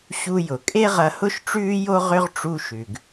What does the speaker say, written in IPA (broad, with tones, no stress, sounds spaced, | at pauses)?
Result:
ɕ u˧ j ʊ˩ kʼ e˥ ʁ ɐ˧ h ʊ˥ ʃ ʈ͡ʂ ʉː˥ j o˥ ʁ ʏ˥ ʁ ʈ͡ʂ u˧ ʃ ʉ˩ ɡ